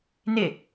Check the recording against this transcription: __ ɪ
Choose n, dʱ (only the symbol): n